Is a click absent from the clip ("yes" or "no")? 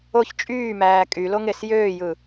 yes